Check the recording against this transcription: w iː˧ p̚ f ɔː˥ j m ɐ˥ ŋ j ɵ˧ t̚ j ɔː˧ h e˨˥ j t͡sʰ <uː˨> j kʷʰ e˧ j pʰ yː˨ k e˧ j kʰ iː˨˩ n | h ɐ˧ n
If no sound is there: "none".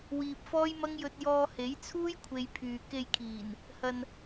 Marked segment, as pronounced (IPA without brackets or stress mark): uː˥